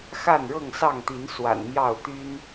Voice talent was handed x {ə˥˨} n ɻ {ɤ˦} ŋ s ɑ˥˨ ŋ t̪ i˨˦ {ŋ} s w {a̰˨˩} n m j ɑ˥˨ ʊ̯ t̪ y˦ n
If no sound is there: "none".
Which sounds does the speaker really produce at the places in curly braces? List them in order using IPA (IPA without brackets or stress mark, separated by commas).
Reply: a˥˨, ɤ˥˨, n, a̰˨˩